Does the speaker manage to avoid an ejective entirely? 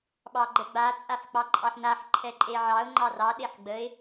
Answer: no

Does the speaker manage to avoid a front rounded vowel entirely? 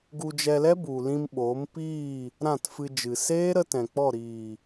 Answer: yes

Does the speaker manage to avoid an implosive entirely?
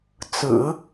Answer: yes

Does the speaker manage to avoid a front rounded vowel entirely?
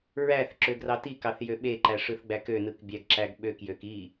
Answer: no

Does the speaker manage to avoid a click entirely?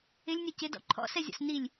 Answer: no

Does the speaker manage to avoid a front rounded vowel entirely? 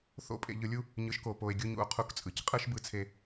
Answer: yes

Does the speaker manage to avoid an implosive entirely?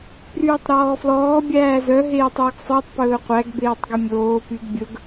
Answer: yes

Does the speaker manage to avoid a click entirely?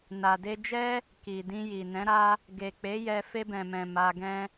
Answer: yes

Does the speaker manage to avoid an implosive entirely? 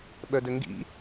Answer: no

